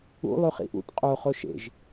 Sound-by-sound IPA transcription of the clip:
ṵ lˠ ʉ χ ḭ ʔ ṵ t qʼ o χ o ʃ ḛ ʒ

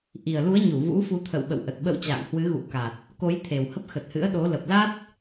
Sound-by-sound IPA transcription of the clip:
ʔ i˨˩ ə̯ l u˨˦ ə̯ ɲ u˧˩ v ṵ˧˥ f u˨˦ t̪ʰ ə̰˧˨ w ɓ ə̰˧˨ w ʔ ə˨˩ t̚ ɓ ə̰˧˨ w t͡ɕ a̰ː˧˨ ŋ h w ɨ˨˦ ɣ ṵ˧˥ k a˨˩ t̚ | k o˨˦ j t̪ʰ e˨˩ w h ə˦˥ p̚ x ə˨˩ t̚ h ɨ̰˧˥ ə̯ ɗ o˨˦ l ə˨˩ p̚ l a˦˥ t̚

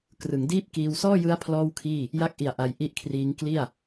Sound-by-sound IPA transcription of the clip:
k r ɯ˩˦ ŋ d iː˥˩ p̚ k iː˧ w s ɔː˥˩ j ɯ˦˥ a̯ pʰ l ɔː˥˩ w kʰ iː˥˩ | j a˦˥ k̚ ʔ i˨˩ a̯ ʔ a˧ j ʔ i˥˩ ʔ kʰ r iː˦˥ ŋ k l i˥˩ a̯

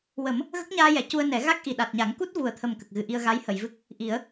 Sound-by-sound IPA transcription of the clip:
w ə˨˩˦ m | ɣ ə˦˥ k̚ ɲ aː˧ j ɛ˨˩˨ c u˧ ə̯ n ɛ˨˩˦ ɣ a˦˥ k̚ ʔ i˨˩ ɗ a˨˩ t̚ ɲ a˨˩˦ ŋ k u˦˥ t̚ v u˨˩ ə̯ t̪ʰ ə˨˩ m k ə˨˩ k̚ ɣ ɨ˨˩˦ ʔ i˧ ə̯ ɣ a˧˥ j h ə˨˩˨ j v ɨ˦˥ k̚ | ʔ i˨˩˦ ə̯

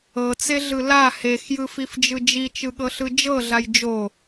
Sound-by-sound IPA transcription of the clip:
ɤ t͡s e ɮ ɯ l a h e x j ɯ f i f d͡ʒ ɯ d͡ʒ i t͡ʃ ɯ ɠ ɤ ɬ ɯ d͡ʒ ɤ ɮ a j d͡ʒ o

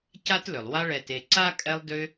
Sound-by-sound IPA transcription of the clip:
c a˦ t l ʏ˩ lˠ w a˦ ɭ ɛ˨ t e˨ ǀ a˥ kʼ ɛ˦ lˠ d ʏ˦

